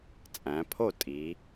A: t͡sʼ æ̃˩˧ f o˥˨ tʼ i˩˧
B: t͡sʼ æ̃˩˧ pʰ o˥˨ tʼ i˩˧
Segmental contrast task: B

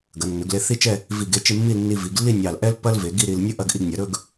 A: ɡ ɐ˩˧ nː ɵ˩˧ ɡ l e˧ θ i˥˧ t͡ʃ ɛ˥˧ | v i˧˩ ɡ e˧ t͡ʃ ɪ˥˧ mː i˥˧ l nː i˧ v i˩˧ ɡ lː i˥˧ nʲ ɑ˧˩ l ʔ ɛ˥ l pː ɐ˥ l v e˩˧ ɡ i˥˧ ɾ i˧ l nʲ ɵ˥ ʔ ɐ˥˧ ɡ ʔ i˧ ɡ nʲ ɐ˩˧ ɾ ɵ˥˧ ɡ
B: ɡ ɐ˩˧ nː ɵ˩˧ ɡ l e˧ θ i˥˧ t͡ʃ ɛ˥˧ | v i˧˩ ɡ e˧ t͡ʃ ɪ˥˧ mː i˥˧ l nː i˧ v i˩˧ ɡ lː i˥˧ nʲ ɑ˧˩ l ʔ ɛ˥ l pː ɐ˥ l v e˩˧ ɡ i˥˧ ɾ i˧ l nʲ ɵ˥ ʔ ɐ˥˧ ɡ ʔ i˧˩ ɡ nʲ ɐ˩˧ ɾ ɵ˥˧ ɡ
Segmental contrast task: A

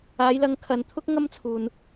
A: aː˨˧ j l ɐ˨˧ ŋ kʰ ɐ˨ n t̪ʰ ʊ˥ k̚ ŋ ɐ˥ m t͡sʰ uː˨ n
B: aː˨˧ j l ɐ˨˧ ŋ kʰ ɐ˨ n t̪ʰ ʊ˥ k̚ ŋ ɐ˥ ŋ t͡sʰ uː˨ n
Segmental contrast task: A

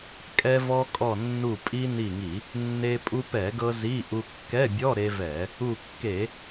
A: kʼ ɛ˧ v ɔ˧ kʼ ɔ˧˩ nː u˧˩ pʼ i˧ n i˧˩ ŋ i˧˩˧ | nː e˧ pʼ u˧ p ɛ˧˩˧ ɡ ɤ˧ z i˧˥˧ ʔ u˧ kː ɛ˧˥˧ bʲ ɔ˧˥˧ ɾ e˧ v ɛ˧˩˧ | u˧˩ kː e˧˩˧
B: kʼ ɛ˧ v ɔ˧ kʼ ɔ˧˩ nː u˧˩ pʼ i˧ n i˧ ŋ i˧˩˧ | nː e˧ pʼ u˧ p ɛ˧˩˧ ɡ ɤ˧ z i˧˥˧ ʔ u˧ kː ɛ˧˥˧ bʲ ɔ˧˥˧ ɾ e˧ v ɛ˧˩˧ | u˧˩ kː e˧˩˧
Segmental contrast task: A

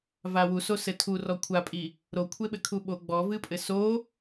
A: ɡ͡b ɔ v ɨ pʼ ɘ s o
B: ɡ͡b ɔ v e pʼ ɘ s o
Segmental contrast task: A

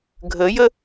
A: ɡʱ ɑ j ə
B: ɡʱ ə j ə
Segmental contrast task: B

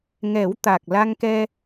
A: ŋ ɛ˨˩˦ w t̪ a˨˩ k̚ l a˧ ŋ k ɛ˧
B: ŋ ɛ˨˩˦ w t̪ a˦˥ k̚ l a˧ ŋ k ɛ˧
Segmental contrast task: A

